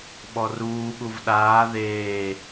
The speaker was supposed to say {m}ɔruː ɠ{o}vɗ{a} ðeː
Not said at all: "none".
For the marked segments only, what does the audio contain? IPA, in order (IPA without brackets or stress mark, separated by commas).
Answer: ɓ, u, aː